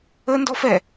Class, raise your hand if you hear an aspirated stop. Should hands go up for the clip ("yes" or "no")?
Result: no